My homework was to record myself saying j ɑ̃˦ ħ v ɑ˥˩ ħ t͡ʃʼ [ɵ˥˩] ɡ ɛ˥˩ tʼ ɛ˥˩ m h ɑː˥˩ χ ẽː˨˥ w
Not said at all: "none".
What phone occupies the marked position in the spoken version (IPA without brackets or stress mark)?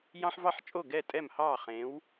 o˥˩